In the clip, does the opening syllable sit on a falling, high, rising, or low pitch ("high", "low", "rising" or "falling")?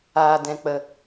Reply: low